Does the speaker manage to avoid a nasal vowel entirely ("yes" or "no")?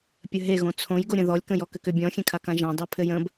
no